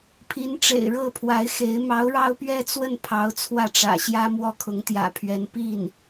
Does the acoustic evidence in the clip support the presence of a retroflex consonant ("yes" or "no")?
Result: yes